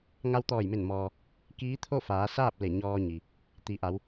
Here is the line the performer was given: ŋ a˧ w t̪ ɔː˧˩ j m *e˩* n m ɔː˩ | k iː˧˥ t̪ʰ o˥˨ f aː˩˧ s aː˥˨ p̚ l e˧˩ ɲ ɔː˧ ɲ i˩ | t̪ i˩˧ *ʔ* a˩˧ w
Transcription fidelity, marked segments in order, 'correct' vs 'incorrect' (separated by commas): incorrect, correct